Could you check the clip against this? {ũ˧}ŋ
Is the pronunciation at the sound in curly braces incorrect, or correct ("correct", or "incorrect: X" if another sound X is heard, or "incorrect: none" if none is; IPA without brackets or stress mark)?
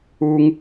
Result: incorrect: u˧